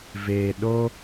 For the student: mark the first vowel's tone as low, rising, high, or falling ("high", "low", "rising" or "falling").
low